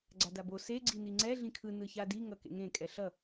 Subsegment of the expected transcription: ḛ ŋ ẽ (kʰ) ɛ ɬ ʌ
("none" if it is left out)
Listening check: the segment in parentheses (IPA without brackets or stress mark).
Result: kʼ